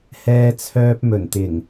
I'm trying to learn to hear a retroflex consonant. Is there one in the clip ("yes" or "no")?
no